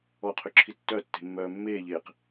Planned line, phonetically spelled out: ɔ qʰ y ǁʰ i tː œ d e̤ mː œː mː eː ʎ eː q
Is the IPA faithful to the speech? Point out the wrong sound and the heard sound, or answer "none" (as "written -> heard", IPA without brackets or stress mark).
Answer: d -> tː